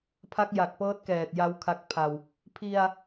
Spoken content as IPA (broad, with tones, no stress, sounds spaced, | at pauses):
pʰ a˦˥ k̚ j a˨˩ k̚ p ɤː˦˥ t̚ k ɛː˨˩ t̚ j a˦˥ w kʰ a˦˥ k̚ pʰ a˧ w | pʰ i˧ a̯